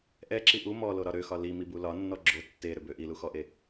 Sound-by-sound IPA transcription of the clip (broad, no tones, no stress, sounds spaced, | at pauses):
ʔ ɛ ǁ i ʔ u m ɔ l o ɾ ɒ ɾ ø x ɒ l i m i b u l ɒ nː ɔ ɡ͡ǁ o tː e ɾ ø b ø ʔ i l u x ɔ ʔ e